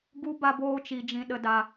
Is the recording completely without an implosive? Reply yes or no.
no